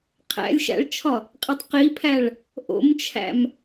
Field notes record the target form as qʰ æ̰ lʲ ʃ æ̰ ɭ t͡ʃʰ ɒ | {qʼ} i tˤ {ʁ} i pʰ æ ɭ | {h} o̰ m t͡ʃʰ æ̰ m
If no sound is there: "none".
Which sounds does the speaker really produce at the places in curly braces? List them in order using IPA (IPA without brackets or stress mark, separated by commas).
qʼ, q, ʔ